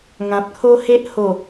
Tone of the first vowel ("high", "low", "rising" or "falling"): low